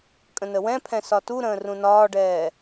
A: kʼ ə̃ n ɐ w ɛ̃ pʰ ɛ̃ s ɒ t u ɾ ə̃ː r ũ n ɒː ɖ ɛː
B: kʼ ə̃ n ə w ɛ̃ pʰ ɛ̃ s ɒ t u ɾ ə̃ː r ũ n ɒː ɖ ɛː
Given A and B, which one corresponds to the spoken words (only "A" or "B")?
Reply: B